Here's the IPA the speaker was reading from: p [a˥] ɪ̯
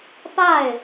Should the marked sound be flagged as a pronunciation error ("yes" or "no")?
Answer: yes